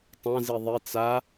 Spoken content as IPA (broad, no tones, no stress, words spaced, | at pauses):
tˤã ziðˤi t͡sa